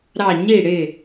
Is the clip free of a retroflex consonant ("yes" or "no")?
no